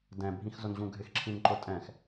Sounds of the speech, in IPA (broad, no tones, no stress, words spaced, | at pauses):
dɛ̃bʱĩxzʊnʑũ ɡʱɪxǁʰĩn ǃʊtʼɛ̃x